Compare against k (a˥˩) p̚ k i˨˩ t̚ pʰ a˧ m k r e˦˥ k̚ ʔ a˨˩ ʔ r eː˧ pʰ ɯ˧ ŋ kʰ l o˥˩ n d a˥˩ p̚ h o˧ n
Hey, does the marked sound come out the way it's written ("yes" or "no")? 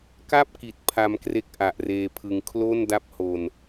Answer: yes